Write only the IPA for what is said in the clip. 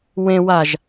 w ẽ w a ʒ

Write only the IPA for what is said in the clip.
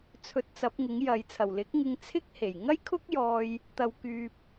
t͡sʰ ɵ˧ t̚ t͡s ɐ˨˥ p̚ ŋ ɪ˨˥ ŋ j ɐ˨ j t͡sʰ ɐ˨˩ w l ɪ˨˥ k̚ ŋ ɪ˧ ŋ t͡sʰ ɪ˥ k̚ h e˨˩ j ŋ ɐ˥ j kʰ ʊ˥ k̚ j ɔː˧ j | t̪ ɐ˨ w k yː˧ p̚

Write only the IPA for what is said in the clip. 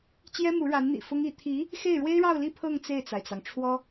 t͡ɕ j ɛ˥ m u˧˥ ɻ a˧˥ n n̪ ḭ˨˩ f ʊ˥ ŋ i˧˥ t̪ʰ i˧˥ | x e˥˩ ɪ̯ ɻ w e˥ ɪ̯ ɻ ɑ˥˧ ʊ̯ l i˥˧ pʰ ɤ˥˧ ŋ t͡s e˥˩ ɪ̯ t͡s a˩ ɪ̯ t͡s ɑ˩ ŋ ʈ͡ʂʰ w ɔ˥

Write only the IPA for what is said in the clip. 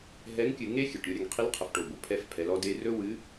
ɦ ɛ˧˥ ŋ kʲ ɨ˧ ŋ e˥ xʲ ɨ˩ ʈ ɾʲ o˧ ɾʲ ə˩˧ ŋ qʰ i˧˥ l qʰ ə˩˧ f ʈ o˩ b o˩ pʰ ɛ˧ f pʰ ɛ˩˧ l ɔ˧ d e˧ r ɵ˥ w ɨ˧˥

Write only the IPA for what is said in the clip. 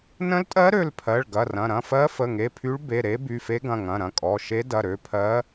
n ə̃˧˥ l tʼ ɜ˧˥ ɾ ø˩˧˩ l pʰ ɜ˩˧˩ ɭ ɡ ɐ˩˧˩ r ɐ̃˩˧˩ ɾ ɐ̃˩˧˩ f ɜ˧˥ f ə˩˧˩ ŋ e˩˧˩ pʰ y˧˥ ɭ b e˩˧˩ ɾ e˧˥ b y˩˧˩ f e˧˥ ɡ ɐ̃˩˧˩ ŋ ɐ̃˩˧˩ ɾ ɐ̃˩˧˩ kʼ ɔ˩˧˩ ʃ e˧˥ d ɐ˩˧˩ ɾ ø˩˧˩ pʰ ɜ˧˥

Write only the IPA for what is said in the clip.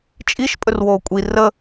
t͡ʃʼ i ʃ pʼ ɵ r w oː kʷʼ i r ə

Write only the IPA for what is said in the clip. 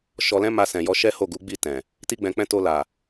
ʃ ɔ˧ l ɛ̃˦ m a˧ s ɛ̃˨ j ɔ˧ ʃ ɛ˦ h o˦˨ ɡ u˨˦ ɡ͡b i˦˨ t ɛ̃˨ | t i˦ ɡ͡b ɛ̃˧ k͡p ɛ̃˦ t o˧ l a˨

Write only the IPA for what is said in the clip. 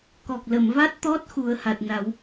k ɔ˨˩ k̚ l ə˨˩˨ m v a˦˥ t̚ t̪ ɔ˦˥ t̚ x u˨˩˦ ə̯ h a˨˩ t̚ n a˨˩˦ w

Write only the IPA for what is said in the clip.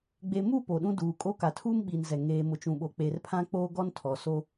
ɡ͡b e˨ m u˦˨ p o˨ ɗ ũ˦ d uː˨ kʼ o˦ k a˨ tʰ uː˦ m ɓ iː˨ n z ɛ˨ ŋ eː˨ m ʊ˨ t͡ʃ ũ˨ ɓ o˨ k͡p e˨ r pʰ ã˦ k͡p oː˦ ɡ ɔ˦ n tʰ ɔ˨ s o˦

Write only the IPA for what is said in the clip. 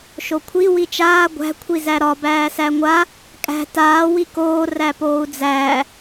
ʃ o kʷʰ i w i t͡ʃ aː ɡʷ æ̤ kʷʰ i z æ ɾ ɒ b æː s æ ŋʷ a | kʼ æ̤ t aː w i k oː r æ p oː u̯ d͡z æː

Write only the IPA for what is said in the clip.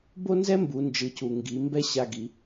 b o˥ n z ɛ˥ m b u˩˧ n d͡ʒ ɯ˩˧ c u˩ ŋ ɡ i˩˧ m b ɛ˥ ɕ a˧ ɡ i˩˧

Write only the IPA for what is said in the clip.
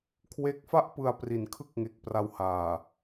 kʰ w e˦˥ k̚ f a˥˩ ʔ p ɯ˧ a̯ p r i˩˦ n kʰ ɯ˥˩ k̚ ŋ e˨˩ k̚ p r a˧ w h aː˨˩

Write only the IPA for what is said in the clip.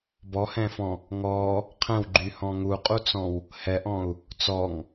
b ɔ h ɛ̃ f ɔ̃ | ŋ ɔː | qʰ ɛ̃ w ɡ͡ǃ y h ɔ̃ ŋ u qʼ u t͡s ɔ̃ w | h ɛ ʔ ɔ̃ u̯ | t͡s ɔ ŋ

